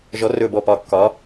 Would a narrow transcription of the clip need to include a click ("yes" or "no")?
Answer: no